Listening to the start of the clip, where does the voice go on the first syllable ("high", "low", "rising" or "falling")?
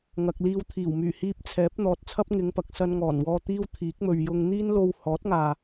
low